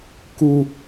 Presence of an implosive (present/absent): absent